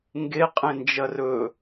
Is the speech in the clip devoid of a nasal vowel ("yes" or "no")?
no